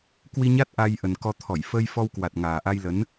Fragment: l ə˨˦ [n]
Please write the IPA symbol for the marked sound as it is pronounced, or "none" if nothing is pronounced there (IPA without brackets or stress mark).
n